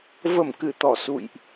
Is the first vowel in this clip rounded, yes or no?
no